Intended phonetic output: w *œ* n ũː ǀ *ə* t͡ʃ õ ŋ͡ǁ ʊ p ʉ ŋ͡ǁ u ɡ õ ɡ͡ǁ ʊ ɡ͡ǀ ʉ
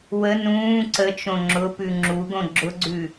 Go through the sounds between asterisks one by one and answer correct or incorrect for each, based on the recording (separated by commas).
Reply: incorrect, correct